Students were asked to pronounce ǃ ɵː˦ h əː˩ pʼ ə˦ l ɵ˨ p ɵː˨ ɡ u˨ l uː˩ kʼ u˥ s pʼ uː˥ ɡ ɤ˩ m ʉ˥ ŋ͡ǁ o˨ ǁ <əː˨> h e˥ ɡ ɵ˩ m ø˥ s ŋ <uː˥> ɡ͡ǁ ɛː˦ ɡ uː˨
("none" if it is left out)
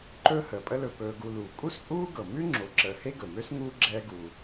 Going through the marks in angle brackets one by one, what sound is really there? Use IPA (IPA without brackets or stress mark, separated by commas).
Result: əː˨, uː˥